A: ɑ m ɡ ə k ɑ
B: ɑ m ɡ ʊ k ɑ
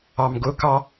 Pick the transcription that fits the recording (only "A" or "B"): B